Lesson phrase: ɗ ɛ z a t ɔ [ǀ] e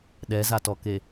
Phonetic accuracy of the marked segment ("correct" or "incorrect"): incorrect